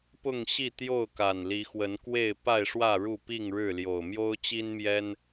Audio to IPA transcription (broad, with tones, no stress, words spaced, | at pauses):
pʊ˥˨ŋɕi˥˨t̪jo˥˨ʊ̯ ka˨˩nli˨˦xwə˨˦nkwe˥˨ɪ̯ pa˥˨ɪ̯ʂwä˥˨ ɻu˥˨pi˥˨ŋɻɻ̩˥˨ljo˨˩ʊ̯ mjo˦ʊ̯t͡ɕi˦nmjɛ˦n